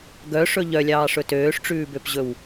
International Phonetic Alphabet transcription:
ɡœʂɵ ʎœlʲɑːʂɵ tøːʂʈ͡ʂʉːbøpʑɵw

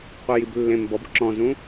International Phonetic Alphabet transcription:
qʷɛjiblːẽm bɔbǁɔ̃zũ

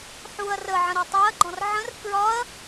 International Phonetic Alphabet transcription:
ħuɐ̯ rəʕə̃ ɾɔtˤæɐ̯ɡ͡ǃɔ̃r ʕə̃r kɹɒɐ̯

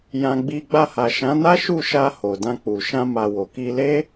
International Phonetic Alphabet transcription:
jã˧ɡ͡bi˧ ɡ͡ba˧ha˨ ʃã˨˦na˦ʃu˦˨ ʃa˧ ho˨ dã˧k͡pu˨ ʃã˧ma˨ wo˨ki˧le˦

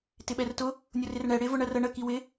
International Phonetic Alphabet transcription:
tɪɓɛrtʊ | nʲʊrɪrɳɛ ɽɪ vʊɳɜrə ɳə kiwɪ

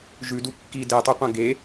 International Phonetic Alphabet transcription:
ʒʉdu kːi detˤuqʷɐ̃ ɡe

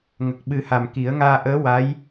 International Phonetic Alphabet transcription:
ŋə˨˩k̚ɓɨ˨˩˦ha˨˩m ki˨˩˦ə̯ ŋaː˧ʔəː˧˥ wa˧˥j

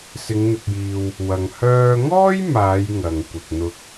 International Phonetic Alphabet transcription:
sɪ˨˧ŋn̪ɪ˨k̚jiː˨w | wɐ˨ŋ hœː˧ŋɔː˥jmaː˨˧j ŋɐ˧ŋkʷɪ˧k̚n̪ʊ˥k̚

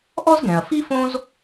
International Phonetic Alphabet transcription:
ʔɔ˥zɡɛ̃˩ɐ̯fi˥ fõ˥z

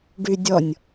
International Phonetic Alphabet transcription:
ɖydʲɔnʲ

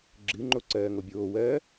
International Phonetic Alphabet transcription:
ɡ͡ǁɨŋ͡ǃo ǀɜːŋobʲoːwɜː

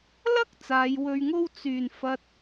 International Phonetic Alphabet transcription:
lɐ˥k̚ t͡saː˨˧jwɵ˧ɥ ŋo˧w t͡syː˨˩nfɐ˨t̚

